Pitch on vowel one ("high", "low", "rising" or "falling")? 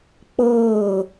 falling